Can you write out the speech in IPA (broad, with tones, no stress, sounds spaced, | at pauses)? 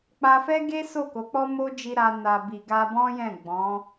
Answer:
k͡p a˧ f ɛ˦ ɡ e˦ s o˦˨ k o˨˦ k͡p ɔ˦ m o˦ d͡ʒ i˧ ɾ a˧ n a˨ b i˨ ɡ a˧ b ɔ̃˦ j ɛ̃˦˨ ɡ͡b ɔ̃˨˦